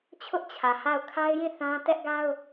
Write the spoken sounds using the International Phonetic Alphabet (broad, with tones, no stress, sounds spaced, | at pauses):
t͡ɕʰ ʊ˦ ʔ t͡ɕʰ ä˨ h a˦˨ ʊ̯ kʰ a˦ ɪ̯ j ĩ˦˨ θ ã˦ t ɛ˦ ʔ ɡ a˦ ʊ̯